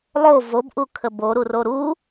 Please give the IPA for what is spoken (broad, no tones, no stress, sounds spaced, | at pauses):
lˠ o v o b ʔ u kʰ ə b o ɾ u r o ɾ u